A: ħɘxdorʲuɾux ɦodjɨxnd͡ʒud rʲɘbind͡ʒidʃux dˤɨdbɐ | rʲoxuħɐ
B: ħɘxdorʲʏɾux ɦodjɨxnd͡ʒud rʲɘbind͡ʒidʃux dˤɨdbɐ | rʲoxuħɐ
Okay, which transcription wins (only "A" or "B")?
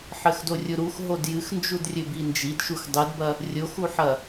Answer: A